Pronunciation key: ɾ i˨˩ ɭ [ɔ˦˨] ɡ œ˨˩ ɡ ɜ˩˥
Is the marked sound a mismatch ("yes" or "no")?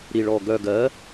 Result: yes